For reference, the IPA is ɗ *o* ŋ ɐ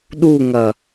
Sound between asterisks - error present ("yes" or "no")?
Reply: yes